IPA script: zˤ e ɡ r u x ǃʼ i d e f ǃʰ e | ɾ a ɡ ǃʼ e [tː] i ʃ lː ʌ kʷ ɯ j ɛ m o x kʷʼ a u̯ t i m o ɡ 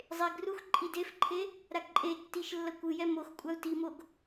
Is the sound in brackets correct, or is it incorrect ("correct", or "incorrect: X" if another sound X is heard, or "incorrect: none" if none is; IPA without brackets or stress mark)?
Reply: correct